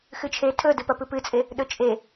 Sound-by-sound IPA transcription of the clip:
x ɨ t͡ʃʰ e tʰ ɵ d ɨ p ɐ p ɨ p ɨ t͡sʼ e | ɗ ɵ t͡ʃʼ e

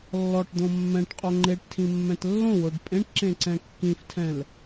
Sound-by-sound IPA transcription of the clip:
lː ɔ ʈ d̪ õ mː ɛ̃ ʈ qʼ o ŋ͡ǃ e ʈ tʰ ĩ mː ɛ̃ t lː õ w o ɖ pʼ ẽ ʈ ǁ ẽ ǀ ɛ̃ kː ĩ f tʰ ɛ̃ l

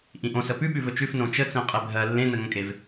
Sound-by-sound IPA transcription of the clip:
ʔ ĩ ʔ õ s ə p ʉ ɓ ʉ v ɵ t͡ʃ ʉ f n õ t͡ʃ ə t͡s ẽ qʼ e bʱ ɜ lː ẽ n ə ŋ ə̃ kʼ e v

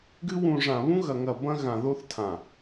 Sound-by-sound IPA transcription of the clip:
ɡ ɨ˦ w ũ˨ ʐ ã˨ β ũ˦ ɣ ɐ˨ ŋ ɐ˨ b ɐ̃˦ ɣ ã˨ ð o˦ θ tʰ ã˨

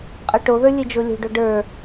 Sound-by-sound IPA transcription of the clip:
qʼ ə˞ ʈ o ð ə˞ lʲ ɘ d͡ʒ o lʲ o̤ ɖ o ɖ ə˞

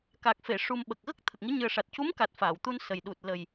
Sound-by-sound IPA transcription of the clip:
k a˨˩ k̚ f e˨˩˨ ʂ u˨˩ m ɓ ə˨˩ k̚ ɣ ə˦˥ k̚ t̪ʰ ə˨˩ k̚ ŋ i˧˥ ɲ ɨ˨˩ ə̯ ʂ a˨˩ t̚ c u˧˥ m k a˨˩ t̚ f aː˨˩˨ w t̪ u˧ n s ə˨˩ j ɗ u˨˩ t̚ l ə˨˩ j

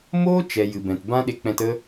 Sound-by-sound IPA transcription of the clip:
m oː˦ t͡ʃ ɛ˨ j ɨ˨ b ɛ̃˨ t b ã˦ ɗ e˧ k͡p ɛ̃˧ t ə˦

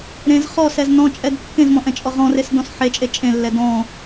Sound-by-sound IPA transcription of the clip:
ɾ ẽ z χ ɔ s ɛ z n ɔ̃ t͡ʃʼ ɛ d kː ẽ z m ɔ̃ ʔ ɛ̃ t͡ʃʼ ɔ ʁ ɔ̃ r e s d ɔ̃ s ħ e t͡ʃʼ e t͡ʃʼ ẽ lː ɛ d ɔ̃

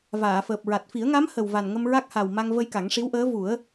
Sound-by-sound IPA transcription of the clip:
v aː˨˩˨ f əː˨˩ p̚ ɹ a˨˩ t̚ f i˨˩˦ ə̯ ŋ a˧˥ m h ə˨˩ w v a˨˩ n ŋ ə˧ m ɹ a˦˥ k̚ h a˨˩ w m a˧ ŋ v ə˧ j k a˨˩˦ ŋ ʂ i˧˥ w ʔ əː˧˥ v u˨˩˦ ə̯

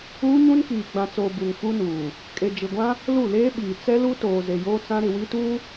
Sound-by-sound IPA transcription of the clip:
uː˦ ɲ ũ˦ n k iː˨ ɡ͡b ã˨ t͡s oː˨ b u˨ ŋ f u˦ n uː˨ | kʼ e˨ d͡ʒ ɪ˨ ɡʷ ã˦ | l u˦˨ l eː˦ ɓ iː˨ t͡s ɛ˦ l u˦ t oː˨ z e˨ j oː˦ t͡s ã˦ ɾ ɪ˨ w i˦ t uː˦

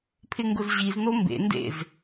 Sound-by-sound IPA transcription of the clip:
pʰ ɪ ŋ ɡ ʊ z ʑ i z n o m b ḛ n d ḛ z

